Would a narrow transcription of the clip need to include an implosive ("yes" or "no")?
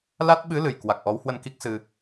yes